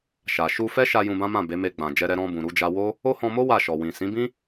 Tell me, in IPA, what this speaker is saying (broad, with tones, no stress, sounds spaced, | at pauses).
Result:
ʃ a˨ ʃ u˧ f ɛ˦ ʃ a˧ j ũ˧ b ã˦ m ã˦˨ b e˨˦ m e˧ ɡ͡b ã˨ d͡ʒ ɛ˧ ɾ ɛ˧ ɾ ɔ̃˧ b ũ˨ ɾ u˧ d͡ʒ a˧ w o˦ | o˦ h ɔ̃˧ m o˦ w a˦˨ ʃ ɔ˨ w ĩ˨ s ĩ˨˦ b ĩ˦